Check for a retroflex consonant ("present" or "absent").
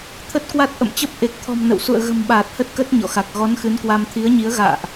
absent